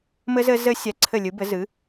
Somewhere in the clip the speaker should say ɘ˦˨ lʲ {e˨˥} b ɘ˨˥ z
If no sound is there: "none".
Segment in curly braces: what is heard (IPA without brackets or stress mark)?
ɨ˨˥